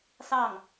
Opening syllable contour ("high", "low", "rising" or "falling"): falling